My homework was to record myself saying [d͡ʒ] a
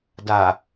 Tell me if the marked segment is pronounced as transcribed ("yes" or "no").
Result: no